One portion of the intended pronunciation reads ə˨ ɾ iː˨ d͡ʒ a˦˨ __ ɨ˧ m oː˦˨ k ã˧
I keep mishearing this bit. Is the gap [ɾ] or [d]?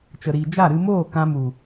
ɾ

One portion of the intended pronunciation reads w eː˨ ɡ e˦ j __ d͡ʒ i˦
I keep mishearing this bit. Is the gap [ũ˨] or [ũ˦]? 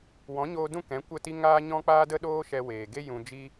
ũ˨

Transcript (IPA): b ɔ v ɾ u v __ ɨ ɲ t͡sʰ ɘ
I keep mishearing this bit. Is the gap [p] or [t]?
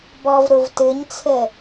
t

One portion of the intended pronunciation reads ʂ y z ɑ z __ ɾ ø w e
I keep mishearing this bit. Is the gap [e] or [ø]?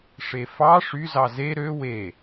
e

